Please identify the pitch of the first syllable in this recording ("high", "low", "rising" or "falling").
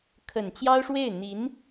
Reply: low